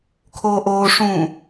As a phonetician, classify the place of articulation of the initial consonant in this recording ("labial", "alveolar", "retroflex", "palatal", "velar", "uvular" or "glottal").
velar